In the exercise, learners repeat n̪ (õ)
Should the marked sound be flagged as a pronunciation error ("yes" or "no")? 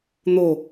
yes